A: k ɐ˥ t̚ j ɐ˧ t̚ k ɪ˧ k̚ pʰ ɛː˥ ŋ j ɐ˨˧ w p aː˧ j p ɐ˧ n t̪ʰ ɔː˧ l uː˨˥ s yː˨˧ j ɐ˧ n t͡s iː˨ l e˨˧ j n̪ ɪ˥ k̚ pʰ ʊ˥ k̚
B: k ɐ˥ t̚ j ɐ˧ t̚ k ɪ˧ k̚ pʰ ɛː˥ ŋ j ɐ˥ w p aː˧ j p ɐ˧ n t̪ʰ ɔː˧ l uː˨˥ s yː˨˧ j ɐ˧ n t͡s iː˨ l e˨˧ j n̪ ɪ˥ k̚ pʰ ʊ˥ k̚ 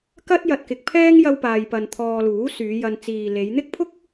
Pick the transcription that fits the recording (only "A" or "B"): B